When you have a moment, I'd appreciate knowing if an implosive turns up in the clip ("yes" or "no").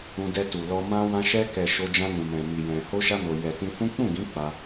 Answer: no